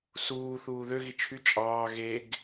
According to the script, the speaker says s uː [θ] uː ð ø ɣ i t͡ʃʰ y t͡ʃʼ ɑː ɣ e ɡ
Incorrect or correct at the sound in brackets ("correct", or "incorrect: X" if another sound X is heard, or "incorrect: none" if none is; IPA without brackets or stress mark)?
correct